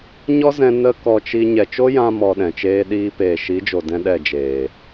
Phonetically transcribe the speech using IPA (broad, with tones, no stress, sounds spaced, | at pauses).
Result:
ɲ ɔ˦ z ɛ̃˧ n ə˦ k ɔ˧ t͡ʃ i˧ ɲ ɛ˨ t͡ʃ o˦ j ã˧ m ɔ˧ ɗ ɛ̃˨ t͡ʃ eː˦ ɗ iː˦ p eː˨ ʃ i˨˦ d͡ʒ o˨ d ɛ̃˧ ɗ ɛ˦˨ d͡ʒ eː˨